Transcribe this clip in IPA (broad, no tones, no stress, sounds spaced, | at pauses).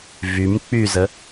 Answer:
v y m k͡p y z ə